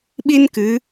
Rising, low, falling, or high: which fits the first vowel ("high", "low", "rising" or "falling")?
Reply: high